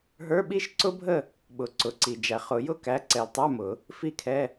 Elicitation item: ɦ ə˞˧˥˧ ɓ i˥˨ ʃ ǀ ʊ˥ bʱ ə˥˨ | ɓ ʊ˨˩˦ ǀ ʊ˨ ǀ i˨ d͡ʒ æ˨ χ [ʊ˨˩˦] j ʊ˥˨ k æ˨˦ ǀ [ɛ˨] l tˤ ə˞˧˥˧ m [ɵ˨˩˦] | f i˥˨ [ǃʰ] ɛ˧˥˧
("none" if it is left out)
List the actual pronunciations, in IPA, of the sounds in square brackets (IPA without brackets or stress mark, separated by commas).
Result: ʊ˨˩˦, ɛ˨, ʊ˨˩˦, kʰ